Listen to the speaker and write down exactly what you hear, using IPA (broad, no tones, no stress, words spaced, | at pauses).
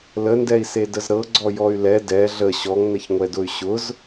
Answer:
ləndɛi̯se dəzɾɤ ɡ͡ǀɔjɔy̯lɛ dɛ ɮə ɕɔŋnəçŋʷɛdʊy̯ ɕʊz